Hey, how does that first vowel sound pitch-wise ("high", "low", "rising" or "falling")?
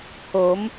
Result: rising